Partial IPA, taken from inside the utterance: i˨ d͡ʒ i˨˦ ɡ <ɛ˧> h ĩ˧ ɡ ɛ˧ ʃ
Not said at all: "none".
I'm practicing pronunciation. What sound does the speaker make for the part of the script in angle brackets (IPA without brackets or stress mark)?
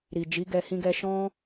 ɛ˧